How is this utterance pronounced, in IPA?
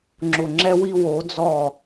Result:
ŋ͡ǁʊ˨ŋ͡ǁɛ˦wi˦ wo˨˦d͡zɔ˦˨

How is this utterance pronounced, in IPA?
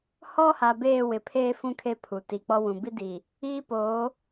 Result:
hɔ˦ha˨ beː˦˨wɪ˨pʰeː˦ fũ˦ kʰe˦pʰu˨ ti˨k͡pɔ˦wũ˨ bi˦di˨ | iː˦poː˨˦

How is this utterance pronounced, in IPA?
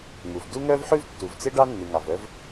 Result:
ŋu˩v du˥ ŋœ˥vħʉ˥vtːu˩vt͡se˥ ɖɑ˥ nːʉ˩ŋɑ˩vœ˥v

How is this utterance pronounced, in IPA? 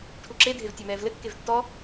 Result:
ʈʰuǁedʱev tʲamɛːvlɘkːev tːɔ

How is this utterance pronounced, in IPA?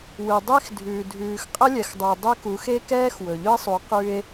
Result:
wɯ˨dˤe˦xdʱʉː˨ dʱʉː˨xqʼə˦lʲɛ˨xdˤu˨e̯ dˤʉ˦ku˨˦x e˦kɛː˦x wɵ˨ʎɵ˦e̯sˤu˨˦ qʉ˦e̯

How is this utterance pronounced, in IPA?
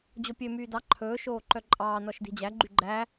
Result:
d͡ʑopʲø myːdɑ ǃʰɵː ʃoːǃœǃʼɑː nɔʃdi̤d͡ʑæ ɡ͡ǃyɡ͡ǃæ

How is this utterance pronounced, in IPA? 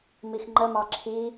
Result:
mixŋ͡ǃəmɑ ǁʰi

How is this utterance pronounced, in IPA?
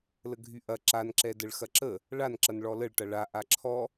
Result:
ləɡʱyʔɐ ǁan ǁɛdəɭxɐǁə | ɭan ǁɐnɭɔləɭ ʈɐɭa ʔaǁʰɔ

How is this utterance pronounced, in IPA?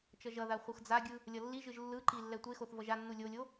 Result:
t͡ʃʌʒʌða χʷɯxd͡zaɡʲɯ | lʲʌlːiʒɯʒ lːɯǃi lːɛtʷexoθ vʌʒanːu lʲolʲo

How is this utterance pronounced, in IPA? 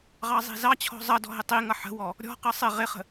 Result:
ʁɑzˤi̤zɑt͡ɕʰɔ̤ zˤʌdɔ̤ ɦɪtˤiŋʌ ħə̤wɔ | ɾʲɔ̤qʌ sˤɪ ʁɪχə̤

